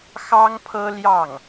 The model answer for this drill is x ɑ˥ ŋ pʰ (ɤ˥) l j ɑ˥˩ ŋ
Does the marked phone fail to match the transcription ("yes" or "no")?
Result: no